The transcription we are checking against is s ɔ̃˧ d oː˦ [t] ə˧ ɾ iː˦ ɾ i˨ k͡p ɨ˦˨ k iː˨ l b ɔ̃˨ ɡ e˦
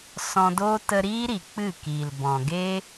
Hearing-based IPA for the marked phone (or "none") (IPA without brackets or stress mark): t